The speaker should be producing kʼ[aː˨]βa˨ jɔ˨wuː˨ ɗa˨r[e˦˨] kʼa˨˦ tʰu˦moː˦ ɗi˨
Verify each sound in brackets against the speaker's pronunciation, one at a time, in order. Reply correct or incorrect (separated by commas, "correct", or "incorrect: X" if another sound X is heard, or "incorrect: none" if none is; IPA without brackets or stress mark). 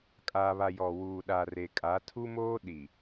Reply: correct, incorrect: e˨